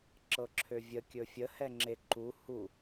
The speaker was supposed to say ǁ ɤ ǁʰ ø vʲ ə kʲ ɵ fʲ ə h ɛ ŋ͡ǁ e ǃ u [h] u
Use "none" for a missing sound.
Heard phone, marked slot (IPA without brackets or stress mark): h